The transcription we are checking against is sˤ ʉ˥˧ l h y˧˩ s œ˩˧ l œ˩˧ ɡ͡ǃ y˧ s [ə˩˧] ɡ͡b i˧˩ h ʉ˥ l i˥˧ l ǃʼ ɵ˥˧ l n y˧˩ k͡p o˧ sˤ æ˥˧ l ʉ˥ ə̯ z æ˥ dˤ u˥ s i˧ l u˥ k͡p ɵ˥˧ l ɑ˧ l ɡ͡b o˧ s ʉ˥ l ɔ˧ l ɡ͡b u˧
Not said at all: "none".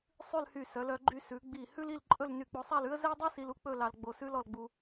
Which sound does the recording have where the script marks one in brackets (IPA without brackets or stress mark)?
ʉ˩˧